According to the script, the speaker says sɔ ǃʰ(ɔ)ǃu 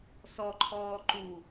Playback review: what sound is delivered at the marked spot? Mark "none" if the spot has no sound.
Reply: ɔː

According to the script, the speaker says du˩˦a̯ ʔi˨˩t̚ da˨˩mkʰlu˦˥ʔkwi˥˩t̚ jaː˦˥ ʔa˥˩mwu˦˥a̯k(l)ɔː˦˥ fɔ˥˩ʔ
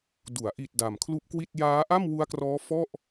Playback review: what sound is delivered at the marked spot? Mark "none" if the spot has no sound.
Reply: r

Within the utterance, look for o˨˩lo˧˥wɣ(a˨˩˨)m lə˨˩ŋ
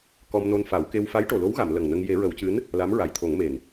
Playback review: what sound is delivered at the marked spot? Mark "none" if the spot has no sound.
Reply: a˨˩˨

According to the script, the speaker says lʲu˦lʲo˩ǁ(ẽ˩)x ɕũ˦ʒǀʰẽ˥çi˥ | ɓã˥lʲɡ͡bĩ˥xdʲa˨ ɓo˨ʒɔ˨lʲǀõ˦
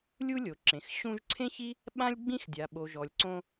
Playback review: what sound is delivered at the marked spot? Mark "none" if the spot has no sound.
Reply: ẽ˩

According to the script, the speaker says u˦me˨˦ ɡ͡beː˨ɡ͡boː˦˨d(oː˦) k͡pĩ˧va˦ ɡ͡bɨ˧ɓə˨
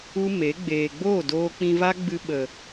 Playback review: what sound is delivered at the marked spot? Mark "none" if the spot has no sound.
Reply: oː˧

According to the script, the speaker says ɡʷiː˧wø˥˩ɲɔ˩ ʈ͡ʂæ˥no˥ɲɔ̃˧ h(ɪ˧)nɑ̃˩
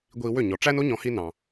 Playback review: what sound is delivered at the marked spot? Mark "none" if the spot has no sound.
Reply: i˧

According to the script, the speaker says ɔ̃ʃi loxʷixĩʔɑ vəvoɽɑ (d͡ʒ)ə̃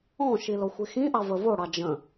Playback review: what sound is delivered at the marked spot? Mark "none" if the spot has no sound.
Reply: d͡ʒ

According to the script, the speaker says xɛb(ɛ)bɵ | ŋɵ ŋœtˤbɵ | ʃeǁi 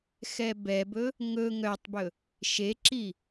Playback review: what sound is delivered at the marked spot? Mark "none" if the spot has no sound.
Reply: ɛ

